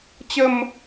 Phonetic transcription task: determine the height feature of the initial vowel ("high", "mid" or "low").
mid